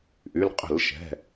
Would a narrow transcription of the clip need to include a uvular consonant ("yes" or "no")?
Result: yes